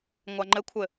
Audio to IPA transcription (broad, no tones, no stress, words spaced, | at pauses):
ŋʷaŋ͡ǃɘkʷʰɘ